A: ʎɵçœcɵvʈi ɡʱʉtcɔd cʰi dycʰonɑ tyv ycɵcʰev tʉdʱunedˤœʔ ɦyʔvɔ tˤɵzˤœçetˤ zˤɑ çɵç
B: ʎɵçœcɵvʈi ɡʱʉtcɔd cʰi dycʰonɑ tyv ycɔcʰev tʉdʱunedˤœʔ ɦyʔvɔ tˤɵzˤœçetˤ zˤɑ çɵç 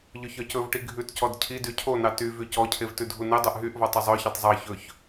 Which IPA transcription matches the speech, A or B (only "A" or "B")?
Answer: B